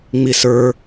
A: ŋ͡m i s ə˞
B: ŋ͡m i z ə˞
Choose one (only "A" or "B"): A